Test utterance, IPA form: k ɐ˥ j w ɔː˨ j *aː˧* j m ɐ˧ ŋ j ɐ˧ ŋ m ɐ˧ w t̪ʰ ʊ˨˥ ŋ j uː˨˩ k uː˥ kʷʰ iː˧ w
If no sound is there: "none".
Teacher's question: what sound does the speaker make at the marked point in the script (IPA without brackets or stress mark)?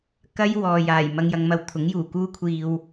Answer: aː˨˩